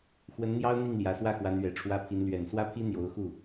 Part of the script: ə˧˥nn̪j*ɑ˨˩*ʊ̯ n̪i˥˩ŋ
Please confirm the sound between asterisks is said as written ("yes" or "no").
no